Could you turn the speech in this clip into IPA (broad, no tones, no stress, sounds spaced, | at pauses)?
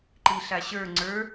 ǃ i ɬ a ɕ ə˞ ŋ͡ǀ ə˞